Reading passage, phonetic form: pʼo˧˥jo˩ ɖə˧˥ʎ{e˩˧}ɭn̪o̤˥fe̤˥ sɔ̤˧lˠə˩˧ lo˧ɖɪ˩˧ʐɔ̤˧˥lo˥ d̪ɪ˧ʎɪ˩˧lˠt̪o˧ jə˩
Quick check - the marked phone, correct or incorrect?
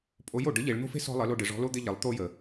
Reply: correct